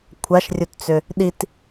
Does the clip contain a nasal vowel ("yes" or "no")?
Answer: no